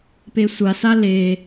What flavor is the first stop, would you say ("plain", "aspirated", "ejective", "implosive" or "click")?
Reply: plain